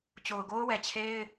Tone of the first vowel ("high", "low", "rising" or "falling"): low